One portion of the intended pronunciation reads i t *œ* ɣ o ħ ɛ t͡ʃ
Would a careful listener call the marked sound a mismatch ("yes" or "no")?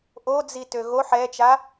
yes